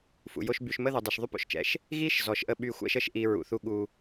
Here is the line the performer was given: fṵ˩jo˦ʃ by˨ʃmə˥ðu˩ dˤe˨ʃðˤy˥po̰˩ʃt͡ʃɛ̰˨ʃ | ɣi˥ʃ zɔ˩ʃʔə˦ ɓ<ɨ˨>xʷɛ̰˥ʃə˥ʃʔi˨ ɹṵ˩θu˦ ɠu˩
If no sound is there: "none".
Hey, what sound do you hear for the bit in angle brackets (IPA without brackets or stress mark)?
y˨